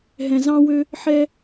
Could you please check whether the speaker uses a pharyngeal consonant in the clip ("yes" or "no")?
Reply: yes